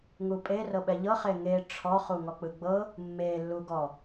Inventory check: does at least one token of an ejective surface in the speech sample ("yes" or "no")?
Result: yes